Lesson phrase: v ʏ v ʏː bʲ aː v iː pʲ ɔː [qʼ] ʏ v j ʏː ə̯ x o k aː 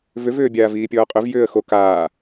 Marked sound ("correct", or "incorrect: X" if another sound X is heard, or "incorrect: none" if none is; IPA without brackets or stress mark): correct